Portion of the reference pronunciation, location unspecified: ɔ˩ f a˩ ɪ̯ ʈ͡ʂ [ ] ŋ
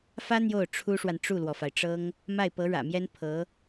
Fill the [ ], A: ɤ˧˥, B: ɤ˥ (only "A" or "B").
B